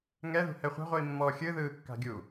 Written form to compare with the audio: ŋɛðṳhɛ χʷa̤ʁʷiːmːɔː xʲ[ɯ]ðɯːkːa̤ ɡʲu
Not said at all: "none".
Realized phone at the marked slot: ɯ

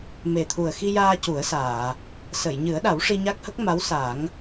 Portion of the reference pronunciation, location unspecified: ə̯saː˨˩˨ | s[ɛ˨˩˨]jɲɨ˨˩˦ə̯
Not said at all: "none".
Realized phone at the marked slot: ə˨˩˨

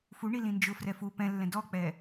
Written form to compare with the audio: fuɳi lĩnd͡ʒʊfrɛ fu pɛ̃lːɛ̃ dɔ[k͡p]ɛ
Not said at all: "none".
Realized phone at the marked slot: k͡p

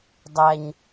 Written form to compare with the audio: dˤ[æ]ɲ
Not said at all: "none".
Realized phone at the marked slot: æ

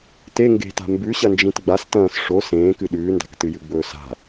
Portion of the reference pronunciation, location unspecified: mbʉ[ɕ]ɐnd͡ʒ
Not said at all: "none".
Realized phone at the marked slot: ɕ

